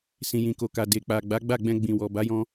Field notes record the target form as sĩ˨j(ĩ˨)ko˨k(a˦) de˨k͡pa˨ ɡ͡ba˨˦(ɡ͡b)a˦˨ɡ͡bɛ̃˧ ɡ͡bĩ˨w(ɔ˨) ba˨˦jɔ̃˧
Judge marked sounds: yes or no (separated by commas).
yes, no, yes, yes